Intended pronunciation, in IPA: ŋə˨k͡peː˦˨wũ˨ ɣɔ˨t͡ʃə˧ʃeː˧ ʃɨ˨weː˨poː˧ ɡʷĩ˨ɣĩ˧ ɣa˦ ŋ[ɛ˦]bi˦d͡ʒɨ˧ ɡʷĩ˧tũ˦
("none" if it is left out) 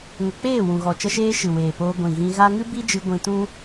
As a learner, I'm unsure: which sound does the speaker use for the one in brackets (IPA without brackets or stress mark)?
ɨ˦